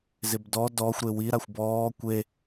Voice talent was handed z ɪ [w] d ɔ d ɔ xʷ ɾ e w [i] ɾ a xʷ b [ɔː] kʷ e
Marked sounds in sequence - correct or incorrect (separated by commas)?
incorrect, correct, correct